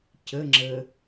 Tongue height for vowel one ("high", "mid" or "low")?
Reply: mid